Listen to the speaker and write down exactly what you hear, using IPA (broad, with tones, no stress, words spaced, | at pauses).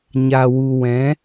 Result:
ɲa˨wu˨wɛ̃˨˦